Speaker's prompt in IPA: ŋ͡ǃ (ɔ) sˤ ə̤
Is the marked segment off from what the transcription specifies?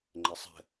yes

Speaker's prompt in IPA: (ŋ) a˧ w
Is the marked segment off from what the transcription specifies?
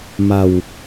yes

